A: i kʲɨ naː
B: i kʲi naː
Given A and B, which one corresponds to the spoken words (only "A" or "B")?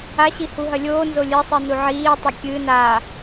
A